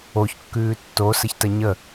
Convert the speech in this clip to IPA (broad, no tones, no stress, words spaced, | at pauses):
oçkːʉː tːosəçtə ɲə